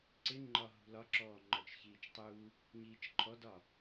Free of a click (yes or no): no